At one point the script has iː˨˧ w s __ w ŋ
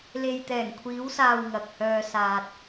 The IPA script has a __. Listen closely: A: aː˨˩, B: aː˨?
B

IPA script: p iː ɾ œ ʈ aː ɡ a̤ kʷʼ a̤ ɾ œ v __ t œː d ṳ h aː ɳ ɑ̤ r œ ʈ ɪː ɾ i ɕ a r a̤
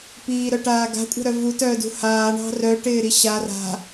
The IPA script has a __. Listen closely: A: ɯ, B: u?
B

